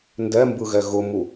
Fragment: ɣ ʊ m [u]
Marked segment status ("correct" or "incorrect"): correct